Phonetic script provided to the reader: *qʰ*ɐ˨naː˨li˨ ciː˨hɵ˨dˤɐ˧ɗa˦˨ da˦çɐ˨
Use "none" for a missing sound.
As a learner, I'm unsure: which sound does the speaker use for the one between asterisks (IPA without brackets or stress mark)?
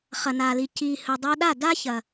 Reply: χ